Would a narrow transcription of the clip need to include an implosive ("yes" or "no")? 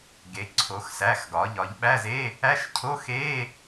yes